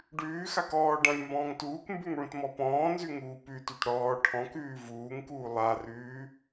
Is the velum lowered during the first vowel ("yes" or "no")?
no